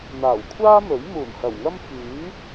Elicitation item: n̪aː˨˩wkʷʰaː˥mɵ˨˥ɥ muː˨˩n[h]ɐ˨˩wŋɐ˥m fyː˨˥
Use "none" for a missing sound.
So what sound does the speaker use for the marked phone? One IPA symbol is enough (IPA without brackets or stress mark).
h